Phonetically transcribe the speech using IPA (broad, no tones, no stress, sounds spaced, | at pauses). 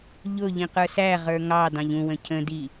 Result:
ʎ ʊ ʎ ĩ q ə˞ s æ ʁ ə˞ ŋ ɑ d ɑ̃ ʎ ũ w ə̃ cʰ ə̃ d i